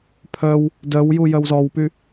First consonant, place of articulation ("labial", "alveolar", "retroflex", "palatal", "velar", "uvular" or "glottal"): labial